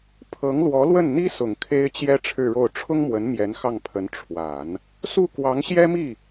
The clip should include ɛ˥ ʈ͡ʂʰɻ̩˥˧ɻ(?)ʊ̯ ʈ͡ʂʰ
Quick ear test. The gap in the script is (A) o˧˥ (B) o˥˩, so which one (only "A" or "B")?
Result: B